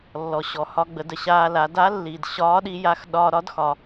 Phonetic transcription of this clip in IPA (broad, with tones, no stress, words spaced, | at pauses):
lːɔ˩ɕɔ˩ hɒ˧ɡ͡bə˩˧ də˩ɕaː˧la˩˧ da˧˥ lːiː˩d ɕɒː˧˥ɗi˧ja˧x ɗɒː˧ɾɒ˧˥dxɒ˩